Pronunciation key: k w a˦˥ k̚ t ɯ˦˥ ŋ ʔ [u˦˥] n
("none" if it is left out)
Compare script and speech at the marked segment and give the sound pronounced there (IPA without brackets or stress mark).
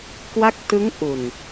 u˨˩